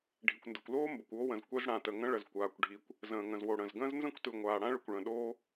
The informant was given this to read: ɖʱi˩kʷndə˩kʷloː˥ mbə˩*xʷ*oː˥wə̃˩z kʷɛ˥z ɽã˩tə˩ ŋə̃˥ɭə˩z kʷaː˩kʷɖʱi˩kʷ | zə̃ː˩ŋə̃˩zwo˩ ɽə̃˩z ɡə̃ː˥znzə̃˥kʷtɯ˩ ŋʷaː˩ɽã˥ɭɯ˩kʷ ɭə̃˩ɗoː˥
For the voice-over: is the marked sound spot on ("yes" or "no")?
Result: no